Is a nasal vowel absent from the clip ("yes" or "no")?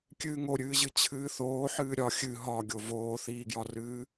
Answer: yes